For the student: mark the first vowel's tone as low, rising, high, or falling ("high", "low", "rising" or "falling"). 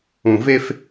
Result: low